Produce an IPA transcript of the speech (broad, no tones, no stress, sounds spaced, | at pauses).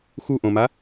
x u ʔ õ m a